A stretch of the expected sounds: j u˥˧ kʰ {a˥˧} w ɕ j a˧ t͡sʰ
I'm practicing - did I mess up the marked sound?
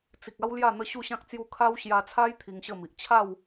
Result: yes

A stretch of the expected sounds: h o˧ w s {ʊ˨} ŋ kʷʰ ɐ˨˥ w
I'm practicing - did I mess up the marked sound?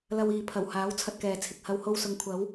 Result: no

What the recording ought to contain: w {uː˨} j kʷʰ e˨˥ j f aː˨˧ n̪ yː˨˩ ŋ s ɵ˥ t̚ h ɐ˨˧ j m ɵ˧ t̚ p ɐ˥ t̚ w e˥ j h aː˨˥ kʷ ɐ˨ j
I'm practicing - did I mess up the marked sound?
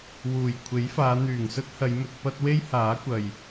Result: yes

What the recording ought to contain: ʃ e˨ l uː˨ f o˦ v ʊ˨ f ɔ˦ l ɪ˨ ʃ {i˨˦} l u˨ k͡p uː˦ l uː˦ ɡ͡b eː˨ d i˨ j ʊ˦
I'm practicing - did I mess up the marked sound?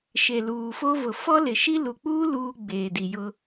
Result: yes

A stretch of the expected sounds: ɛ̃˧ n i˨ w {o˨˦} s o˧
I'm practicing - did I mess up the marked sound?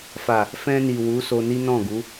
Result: yes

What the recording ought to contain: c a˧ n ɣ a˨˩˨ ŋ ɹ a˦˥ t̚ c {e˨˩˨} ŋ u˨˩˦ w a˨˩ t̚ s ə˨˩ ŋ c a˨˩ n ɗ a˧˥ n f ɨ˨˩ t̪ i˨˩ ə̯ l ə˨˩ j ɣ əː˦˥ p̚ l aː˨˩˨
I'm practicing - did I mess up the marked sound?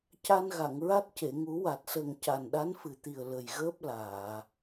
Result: no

